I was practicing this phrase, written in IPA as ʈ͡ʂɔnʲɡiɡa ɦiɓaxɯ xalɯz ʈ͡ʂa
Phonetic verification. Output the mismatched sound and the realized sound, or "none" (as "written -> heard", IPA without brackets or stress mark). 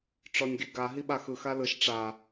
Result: z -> ʃ